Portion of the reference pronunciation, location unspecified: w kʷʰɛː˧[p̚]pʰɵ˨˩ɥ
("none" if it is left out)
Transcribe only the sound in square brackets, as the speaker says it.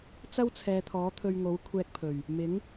k̚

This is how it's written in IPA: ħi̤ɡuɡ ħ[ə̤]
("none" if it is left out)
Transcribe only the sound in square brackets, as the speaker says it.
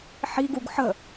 ə̤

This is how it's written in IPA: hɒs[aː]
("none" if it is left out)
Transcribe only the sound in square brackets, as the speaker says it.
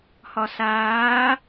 aː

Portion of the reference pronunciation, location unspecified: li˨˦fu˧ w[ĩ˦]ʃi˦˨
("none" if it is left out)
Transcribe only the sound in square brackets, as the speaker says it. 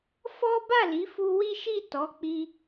i˦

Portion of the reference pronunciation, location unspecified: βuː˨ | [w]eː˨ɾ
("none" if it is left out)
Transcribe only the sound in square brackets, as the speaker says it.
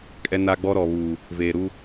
v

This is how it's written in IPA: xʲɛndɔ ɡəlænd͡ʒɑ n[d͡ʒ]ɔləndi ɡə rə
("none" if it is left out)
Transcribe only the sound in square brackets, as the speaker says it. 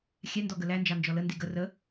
d͡ʒ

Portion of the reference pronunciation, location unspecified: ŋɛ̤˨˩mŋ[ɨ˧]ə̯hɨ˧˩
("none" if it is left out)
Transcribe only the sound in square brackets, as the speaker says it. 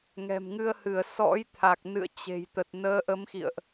ɨ˧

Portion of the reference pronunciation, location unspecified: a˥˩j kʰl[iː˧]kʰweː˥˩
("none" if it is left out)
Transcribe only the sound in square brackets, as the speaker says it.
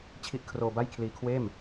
iː˧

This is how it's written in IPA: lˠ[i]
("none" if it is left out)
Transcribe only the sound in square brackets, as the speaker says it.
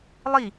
i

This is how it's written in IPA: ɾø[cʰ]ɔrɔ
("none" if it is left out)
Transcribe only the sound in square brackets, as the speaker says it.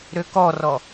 k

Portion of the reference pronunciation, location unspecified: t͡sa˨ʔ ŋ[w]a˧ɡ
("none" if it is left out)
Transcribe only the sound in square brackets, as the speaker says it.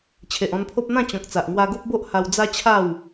w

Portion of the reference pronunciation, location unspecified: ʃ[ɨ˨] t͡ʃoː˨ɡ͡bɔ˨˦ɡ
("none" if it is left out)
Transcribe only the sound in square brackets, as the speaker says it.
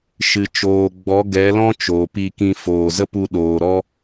ɨ˨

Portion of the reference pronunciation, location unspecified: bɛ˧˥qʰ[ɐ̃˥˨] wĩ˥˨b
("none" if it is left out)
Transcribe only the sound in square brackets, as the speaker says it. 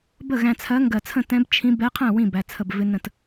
æ̃˥˨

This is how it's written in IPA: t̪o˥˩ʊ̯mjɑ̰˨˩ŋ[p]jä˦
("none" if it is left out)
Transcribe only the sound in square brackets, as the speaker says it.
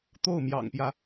p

